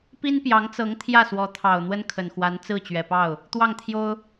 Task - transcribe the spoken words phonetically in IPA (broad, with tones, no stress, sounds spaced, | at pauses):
p i˥ n p j ɑ˧˥ ŋ t͡s ɤ˧˥ ŋ t̪ʰ j ä˥˩ s w ɔ˧˥ t̪ʰ ɑ˨˩ ʊ̯ n̪ w ə˥ n kʰ ə˨˩ n x w a˧˥ n t͡s ɹ̩˥˩ t͡ɕ ɥ ɛ˨˩ p ɑ˥˩ ʊ̯ | t̪ w ɑ˥˩ ŋ t̪ʰ j o˥ ʊ̯